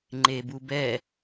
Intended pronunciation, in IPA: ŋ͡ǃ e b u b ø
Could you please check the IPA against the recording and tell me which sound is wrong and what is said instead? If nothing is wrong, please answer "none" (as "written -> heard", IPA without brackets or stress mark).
ø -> ɛ